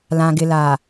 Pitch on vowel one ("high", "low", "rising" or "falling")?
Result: low